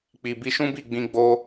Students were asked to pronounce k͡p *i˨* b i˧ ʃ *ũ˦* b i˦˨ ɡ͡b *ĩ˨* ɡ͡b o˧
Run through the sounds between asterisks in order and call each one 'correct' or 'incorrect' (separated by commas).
correct, correct, incorrect